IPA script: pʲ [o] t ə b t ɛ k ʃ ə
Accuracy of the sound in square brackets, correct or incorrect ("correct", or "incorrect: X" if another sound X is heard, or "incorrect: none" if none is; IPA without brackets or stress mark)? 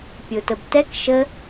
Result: correct